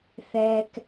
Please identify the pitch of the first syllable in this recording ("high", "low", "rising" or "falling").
low